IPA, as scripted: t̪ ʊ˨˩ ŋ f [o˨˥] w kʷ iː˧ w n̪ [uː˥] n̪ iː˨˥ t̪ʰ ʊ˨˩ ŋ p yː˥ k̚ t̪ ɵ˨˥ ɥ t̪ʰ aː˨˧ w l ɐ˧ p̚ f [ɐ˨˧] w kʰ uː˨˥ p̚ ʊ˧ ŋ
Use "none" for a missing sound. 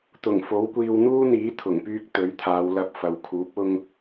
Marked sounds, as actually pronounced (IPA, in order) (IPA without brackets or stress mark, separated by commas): o˨˥, uː˥, ɐ˨˧